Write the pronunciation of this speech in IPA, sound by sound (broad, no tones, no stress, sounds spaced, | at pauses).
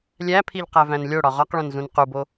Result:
lʲ æ pʰ i ʎ q æ v æ̃ n lʲ o ɽ ɒ ʁ ɒ q ɭ õ n z ũ n q u b o